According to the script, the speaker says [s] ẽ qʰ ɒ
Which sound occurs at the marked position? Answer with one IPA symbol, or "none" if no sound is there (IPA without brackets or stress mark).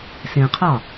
s